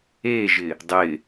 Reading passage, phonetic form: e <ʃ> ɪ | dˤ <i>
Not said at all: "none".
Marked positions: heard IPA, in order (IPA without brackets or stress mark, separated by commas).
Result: ʒ, ɪ